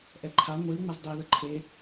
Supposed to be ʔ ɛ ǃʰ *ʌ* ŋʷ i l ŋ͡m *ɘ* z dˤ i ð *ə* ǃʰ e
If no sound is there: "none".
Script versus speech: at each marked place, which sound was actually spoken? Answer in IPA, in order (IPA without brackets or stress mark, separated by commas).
a, ɘ, ə